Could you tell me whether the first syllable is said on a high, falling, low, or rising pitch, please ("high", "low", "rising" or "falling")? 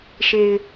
low